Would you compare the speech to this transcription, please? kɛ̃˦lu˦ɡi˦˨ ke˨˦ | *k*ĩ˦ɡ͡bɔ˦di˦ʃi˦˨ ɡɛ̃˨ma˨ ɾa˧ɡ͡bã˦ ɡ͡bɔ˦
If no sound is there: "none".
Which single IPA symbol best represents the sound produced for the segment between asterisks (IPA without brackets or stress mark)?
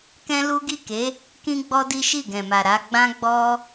k